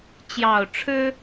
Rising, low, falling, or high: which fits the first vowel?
low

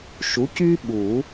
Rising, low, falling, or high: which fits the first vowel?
rising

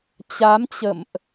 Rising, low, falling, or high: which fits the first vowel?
rising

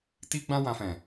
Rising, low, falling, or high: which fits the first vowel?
high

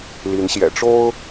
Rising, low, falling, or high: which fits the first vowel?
rising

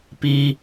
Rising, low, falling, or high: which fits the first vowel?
high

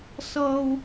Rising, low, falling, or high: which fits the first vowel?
high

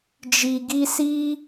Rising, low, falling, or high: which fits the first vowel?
low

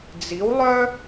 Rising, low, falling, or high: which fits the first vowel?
rising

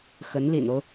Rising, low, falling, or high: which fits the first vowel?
rising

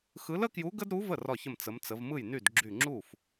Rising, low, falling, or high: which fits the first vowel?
rising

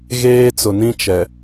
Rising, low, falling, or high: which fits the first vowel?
high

